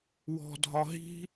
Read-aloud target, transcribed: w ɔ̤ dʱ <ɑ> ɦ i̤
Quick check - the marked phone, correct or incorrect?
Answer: incorrect